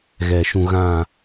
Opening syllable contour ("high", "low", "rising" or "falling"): low